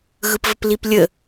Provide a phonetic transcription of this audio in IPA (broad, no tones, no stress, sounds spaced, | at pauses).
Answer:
ɣ ɯ p v ə p l i p lʲ ə